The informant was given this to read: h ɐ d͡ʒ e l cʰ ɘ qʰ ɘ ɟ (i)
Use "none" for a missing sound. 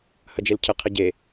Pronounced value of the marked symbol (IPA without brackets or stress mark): e